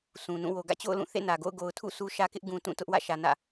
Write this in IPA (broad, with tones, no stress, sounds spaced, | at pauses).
sʰ ũ˨ n ũ˦˨ w o˨ ɡ ä̰˦˨ t͡ɕ o̰˦˨ ʊ̯ l ũ˦˨ θ ḛ˦˨ n ä˨ ɡ o̰˦˨ ʊ̯ ɡ o˨ ʊ̯ tʰ ṵ˦˨ s u˦ ʃ ä˦ k ɪ˦ ʔ ɡ ũ˨ t ũ˦˨ t ʊ˦ ʔ w ä̰˦˨ ʃ ä˨ n ä̰˦˨